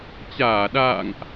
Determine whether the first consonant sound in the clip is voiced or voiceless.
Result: voiceless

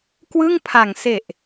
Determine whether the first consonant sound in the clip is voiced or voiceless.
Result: voiceless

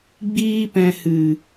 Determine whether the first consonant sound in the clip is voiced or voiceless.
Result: voiced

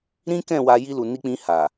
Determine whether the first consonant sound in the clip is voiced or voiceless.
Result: voiced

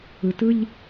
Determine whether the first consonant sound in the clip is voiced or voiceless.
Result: voiceless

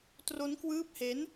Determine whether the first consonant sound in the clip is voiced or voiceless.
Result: voiceless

